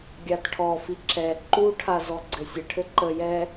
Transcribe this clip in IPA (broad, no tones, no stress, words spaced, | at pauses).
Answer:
ɡʲatʈʰɔfi ǁɛ ǃuʈʰa zɔɡ͡ǀɘsʲəʈʰɘ ǃəjɛ